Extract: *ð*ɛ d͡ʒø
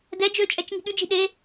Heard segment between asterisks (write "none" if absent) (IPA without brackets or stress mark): d